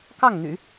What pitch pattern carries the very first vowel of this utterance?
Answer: falling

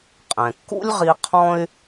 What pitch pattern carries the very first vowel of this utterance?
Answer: low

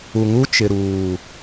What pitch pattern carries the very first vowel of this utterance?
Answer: low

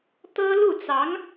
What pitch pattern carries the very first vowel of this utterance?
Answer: high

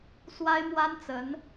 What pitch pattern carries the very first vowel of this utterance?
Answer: high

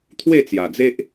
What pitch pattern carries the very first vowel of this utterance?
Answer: falling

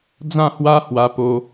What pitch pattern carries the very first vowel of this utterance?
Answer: falling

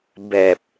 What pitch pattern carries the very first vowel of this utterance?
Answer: low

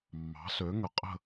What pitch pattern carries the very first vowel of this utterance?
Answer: rising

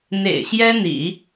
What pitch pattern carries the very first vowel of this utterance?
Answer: low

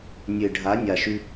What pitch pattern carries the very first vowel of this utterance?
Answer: low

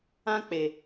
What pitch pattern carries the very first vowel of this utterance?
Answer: high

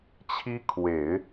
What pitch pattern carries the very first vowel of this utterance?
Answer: high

